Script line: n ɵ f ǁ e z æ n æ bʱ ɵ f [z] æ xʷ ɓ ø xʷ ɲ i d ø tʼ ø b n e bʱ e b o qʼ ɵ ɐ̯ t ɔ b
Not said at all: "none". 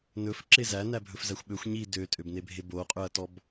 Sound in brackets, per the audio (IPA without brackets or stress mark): z